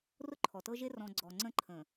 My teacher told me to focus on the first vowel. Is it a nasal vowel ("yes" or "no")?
no